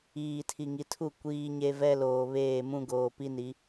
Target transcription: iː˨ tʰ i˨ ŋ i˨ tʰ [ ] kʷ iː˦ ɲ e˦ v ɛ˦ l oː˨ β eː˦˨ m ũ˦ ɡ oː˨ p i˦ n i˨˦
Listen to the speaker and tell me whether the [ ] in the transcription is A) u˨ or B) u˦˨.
B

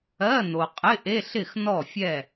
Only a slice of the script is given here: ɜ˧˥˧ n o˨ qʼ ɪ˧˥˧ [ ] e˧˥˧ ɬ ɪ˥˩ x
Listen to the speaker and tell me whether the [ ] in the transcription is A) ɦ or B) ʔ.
B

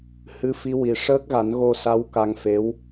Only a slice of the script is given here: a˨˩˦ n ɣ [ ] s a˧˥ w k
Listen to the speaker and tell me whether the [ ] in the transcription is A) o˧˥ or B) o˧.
B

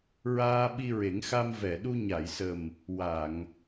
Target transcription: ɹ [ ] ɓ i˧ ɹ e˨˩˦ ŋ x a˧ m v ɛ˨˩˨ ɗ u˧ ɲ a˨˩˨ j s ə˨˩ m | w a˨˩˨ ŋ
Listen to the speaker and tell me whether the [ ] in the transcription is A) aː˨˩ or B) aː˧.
B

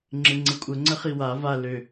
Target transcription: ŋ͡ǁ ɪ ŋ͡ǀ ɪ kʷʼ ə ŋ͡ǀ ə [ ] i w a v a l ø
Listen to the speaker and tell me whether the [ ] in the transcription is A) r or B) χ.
B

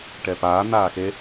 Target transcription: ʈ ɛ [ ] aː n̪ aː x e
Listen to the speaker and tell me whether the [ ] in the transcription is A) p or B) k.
A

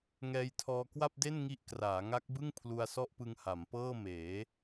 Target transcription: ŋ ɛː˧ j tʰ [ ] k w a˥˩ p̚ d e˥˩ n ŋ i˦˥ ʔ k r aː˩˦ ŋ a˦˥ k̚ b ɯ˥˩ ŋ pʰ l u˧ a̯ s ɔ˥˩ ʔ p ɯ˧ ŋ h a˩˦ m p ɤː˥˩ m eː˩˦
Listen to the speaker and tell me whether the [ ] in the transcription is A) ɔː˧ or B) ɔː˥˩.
A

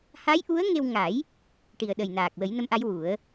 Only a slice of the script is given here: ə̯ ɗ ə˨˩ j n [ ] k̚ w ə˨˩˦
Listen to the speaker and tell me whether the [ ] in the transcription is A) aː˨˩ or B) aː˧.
A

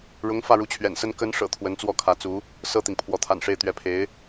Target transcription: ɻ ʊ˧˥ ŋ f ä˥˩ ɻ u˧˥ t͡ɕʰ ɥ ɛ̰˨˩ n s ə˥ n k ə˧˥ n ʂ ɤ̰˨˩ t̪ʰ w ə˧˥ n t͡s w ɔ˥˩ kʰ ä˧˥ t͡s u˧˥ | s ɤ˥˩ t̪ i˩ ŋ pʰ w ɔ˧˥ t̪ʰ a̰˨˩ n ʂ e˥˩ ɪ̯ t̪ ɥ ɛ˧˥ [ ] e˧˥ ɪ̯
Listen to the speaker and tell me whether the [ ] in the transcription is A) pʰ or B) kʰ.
A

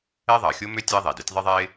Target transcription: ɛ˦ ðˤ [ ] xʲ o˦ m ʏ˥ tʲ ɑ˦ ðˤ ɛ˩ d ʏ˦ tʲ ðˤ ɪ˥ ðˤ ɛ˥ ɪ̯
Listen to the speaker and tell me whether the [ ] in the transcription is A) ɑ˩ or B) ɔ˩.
A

